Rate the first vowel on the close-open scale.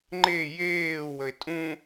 mid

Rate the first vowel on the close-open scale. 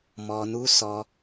mid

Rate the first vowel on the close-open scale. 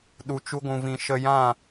close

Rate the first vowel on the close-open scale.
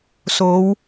mid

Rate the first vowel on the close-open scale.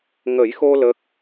mid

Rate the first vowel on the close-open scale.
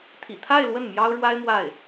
close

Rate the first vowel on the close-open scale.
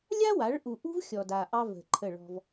open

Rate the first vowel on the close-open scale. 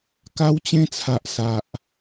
open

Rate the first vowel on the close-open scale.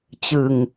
close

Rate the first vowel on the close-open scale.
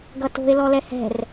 mid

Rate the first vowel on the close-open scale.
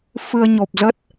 close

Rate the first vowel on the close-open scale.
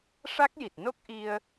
open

